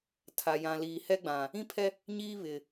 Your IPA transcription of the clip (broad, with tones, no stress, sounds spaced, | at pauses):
tʰ a˨ j ã˨ l iː˨ h ɛ˦ ɡ͡b ã˨ | ĩ˦ pʰ ɛ˦ | ɲ iː˦ β ɪ˨